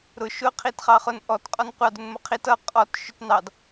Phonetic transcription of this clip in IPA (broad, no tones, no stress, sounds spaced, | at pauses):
ɾ ʊ ʃ ʊ qʰ i t χ ɑ χ ʊ n ʔ ɔ t qʼ ɔ n qʷ ɑ d ʊ n m ʊ qʰ i t ʌ qʼ ɔ t ʃ ʊ t n ɑ d